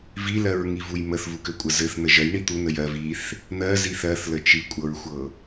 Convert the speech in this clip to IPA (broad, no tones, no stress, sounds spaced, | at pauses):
v i l ɜ ɹ ŋ i v u j m ə θ v u k ɘ kʷʼ ə z ɘ θ n ə ʒ ɜ j ɳ i t̪ u n ə j ɜ v i θ | n̪ ɜ z i θ ɜ θ l ə t͡ʃ i kʷʼ ɤ ɹ xʷ ɤ